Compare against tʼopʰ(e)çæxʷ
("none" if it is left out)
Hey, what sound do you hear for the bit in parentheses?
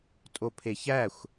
e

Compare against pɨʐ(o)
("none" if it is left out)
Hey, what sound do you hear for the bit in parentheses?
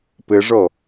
o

